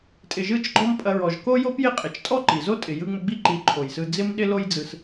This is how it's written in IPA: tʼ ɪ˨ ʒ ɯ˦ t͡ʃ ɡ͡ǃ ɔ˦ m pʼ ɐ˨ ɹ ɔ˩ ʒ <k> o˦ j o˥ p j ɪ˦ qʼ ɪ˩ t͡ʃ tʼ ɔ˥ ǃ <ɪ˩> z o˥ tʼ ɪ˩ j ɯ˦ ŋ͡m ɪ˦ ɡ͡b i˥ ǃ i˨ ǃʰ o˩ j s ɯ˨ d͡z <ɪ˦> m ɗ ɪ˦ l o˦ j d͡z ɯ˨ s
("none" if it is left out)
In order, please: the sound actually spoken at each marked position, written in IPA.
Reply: k, i˩, ɪ˦

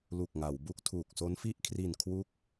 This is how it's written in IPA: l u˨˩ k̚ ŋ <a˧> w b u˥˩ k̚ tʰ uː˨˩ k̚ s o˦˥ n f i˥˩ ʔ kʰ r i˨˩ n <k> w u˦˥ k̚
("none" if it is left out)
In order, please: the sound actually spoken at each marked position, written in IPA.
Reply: a˩˦, kʰ

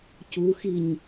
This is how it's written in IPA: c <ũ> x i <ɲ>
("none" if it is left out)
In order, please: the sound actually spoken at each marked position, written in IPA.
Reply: u, ɲ

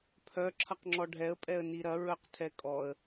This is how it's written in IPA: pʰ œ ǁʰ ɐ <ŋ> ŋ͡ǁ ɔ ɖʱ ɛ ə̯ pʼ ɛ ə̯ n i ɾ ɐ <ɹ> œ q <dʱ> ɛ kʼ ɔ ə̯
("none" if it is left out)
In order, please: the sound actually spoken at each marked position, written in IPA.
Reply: q, ɹ, tʰ

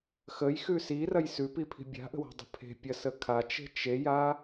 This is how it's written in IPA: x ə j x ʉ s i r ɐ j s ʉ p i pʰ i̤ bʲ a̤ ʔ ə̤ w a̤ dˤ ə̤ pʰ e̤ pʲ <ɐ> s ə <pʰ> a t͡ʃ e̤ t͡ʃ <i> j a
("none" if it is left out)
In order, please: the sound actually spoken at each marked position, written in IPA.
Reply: ɐ, kʰ, e

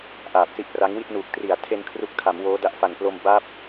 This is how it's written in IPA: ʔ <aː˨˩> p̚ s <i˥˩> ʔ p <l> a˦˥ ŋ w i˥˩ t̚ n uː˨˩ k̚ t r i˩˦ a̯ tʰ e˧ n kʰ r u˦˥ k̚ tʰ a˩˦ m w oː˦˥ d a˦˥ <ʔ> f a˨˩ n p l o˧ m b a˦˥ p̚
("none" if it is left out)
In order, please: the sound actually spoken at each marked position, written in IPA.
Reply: aː˨˩, i˦˥, r, ʔ

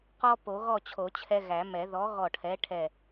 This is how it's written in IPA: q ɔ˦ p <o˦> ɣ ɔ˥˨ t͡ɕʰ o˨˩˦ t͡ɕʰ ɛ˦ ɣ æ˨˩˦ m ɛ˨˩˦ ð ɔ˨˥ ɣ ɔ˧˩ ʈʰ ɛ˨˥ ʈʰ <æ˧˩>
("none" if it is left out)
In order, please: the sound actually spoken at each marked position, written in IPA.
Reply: o˨˩˦, ɛ˧˩

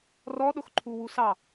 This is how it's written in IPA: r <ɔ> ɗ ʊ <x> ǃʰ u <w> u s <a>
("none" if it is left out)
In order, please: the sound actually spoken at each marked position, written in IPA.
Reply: ɔ, x, w, ɑ

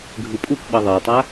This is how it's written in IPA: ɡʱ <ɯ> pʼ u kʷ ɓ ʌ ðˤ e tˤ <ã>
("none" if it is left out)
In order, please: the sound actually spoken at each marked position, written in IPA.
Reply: ɯ, a

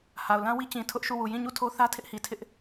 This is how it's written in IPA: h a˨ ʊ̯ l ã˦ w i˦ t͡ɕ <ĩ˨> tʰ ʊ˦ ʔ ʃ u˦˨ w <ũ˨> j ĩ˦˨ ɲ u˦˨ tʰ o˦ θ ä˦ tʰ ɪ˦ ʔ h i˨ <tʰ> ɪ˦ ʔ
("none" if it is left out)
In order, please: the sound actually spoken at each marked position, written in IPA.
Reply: ĩ˨, u˨, tʰ

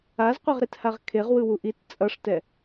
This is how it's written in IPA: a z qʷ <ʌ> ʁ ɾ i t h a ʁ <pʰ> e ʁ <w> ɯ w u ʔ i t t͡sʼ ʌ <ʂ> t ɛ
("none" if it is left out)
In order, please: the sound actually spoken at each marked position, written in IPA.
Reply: ʌ, kʰ, w, ʂ

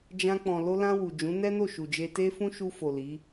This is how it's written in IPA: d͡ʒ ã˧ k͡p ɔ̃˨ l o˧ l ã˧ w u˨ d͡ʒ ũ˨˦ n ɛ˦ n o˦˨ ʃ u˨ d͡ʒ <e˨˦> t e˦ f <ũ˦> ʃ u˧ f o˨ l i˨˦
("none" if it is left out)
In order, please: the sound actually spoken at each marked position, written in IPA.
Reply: e˧, ũ˦

